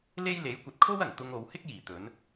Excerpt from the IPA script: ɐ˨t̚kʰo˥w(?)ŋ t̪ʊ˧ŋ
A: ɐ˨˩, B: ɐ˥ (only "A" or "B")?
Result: A